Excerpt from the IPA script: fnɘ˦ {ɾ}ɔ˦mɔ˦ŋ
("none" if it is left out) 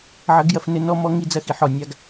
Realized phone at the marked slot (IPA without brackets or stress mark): n